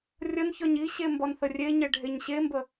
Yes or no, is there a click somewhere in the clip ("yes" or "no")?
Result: no